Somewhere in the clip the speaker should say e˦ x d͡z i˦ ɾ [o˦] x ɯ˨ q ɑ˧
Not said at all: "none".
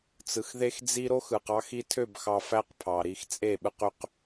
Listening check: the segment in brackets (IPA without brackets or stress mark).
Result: o˦